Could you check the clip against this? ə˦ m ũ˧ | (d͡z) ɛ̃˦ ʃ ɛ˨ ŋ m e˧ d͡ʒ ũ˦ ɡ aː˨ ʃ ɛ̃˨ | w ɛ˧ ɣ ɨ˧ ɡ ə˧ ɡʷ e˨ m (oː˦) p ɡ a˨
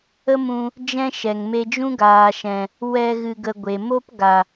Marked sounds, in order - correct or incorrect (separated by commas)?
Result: incorrect, incorrect